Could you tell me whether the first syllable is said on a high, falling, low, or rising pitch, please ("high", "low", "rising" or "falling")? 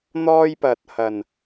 high